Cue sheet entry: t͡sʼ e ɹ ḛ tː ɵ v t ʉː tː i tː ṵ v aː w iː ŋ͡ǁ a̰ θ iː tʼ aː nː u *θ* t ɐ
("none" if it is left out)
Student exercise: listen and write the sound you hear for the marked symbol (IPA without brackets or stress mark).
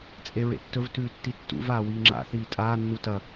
none